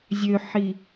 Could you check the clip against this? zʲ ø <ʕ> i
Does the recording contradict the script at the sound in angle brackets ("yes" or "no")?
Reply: yes